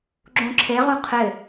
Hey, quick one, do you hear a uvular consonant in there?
yes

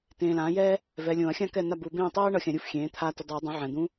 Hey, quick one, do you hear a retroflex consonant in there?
yes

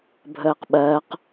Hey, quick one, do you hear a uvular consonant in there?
yes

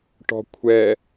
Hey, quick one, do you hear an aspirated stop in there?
yes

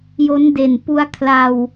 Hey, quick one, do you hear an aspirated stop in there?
yes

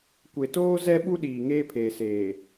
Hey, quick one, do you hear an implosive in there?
yes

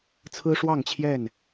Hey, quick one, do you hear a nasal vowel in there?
no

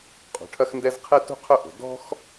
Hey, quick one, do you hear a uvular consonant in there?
yes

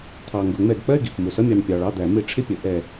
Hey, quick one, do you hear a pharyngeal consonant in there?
no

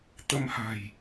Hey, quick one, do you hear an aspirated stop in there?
no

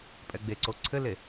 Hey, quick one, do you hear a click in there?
yes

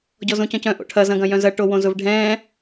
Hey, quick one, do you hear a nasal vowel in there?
yes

